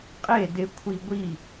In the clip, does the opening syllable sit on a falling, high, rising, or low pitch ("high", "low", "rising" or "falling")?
falling